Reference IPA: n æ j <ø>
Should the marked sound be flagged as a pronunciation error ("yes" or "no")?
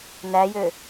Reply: no